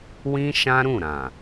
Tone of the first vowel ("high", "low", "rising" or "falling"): high